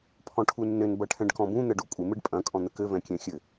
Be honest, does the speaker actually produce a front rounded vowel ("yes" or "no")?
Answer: no